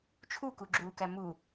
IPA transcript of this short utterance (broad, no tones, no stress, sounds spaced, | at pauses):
t͡ʃʰ u k u ɡ͡ǁ uː k æ m u